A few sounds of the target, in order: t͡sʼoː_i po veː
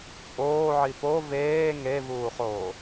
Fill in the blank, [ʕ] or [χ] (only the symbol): ʕ